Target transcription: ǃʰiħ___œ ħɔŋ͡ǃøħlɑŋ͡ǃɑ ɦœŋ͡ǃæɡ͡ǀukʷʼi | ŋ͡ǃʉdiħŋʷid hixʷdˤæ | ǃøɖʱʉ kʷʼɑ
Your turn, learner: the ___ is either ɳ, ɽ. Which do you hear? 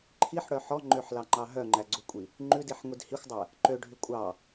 ɽ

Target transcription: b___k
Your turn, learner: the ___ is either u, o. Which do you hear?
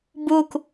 u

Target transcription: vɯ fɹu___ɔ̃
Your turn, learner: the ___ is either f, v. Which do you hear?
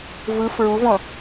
v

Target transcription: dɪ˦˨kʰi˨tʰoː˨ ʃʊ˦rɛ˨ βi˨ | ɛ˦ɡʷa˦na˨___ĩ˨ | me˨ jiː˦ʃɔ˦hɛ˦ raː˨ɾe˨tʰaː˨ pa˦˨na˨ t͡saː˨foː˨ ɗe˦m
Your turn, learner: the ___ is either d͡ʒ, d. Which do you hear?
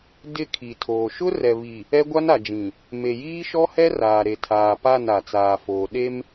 d͡ʒ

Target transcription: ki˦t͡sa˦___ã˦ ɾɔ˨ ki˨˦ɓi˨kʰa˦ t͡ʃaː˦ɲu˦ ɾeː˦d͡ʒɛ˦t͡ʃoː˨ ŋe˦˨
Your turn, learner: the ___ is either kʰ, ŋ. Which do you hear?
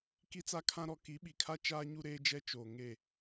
kʰ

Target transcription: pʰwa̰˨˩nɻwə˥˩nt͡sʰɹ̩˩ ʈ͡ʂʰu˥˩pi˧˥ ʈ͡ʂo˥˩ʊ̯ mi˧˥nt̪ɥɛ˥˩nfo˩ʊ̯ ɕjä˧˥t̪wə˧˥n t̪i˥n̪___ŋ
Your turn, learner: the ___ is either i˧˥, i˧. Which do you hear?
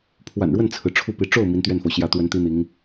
i˧˥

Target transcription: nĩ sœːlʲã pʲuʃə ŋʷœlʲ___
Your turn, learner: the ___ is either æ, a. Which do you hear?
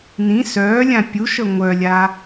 a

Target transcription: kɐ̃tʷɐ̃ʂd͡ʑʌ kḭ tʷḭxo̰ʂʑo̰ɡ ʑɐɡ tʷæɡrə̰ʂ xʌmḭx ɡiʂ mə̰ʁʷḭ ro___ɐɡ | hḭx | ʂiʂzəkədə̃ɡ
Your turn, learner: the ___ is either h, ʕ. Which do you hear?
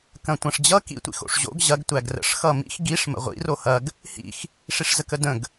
h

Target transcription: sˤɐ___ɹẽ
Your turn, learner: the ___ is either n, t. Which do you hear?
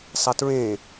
t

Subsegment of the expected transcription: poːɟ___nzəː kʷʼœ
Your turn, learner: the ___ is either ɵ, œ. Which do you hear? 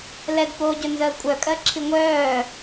ɵ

